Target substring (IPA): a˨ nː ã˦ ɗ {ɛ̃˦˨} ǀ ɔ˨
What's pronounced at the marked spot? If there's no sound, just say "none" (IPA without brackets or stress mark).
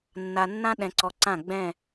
ɛ̃˨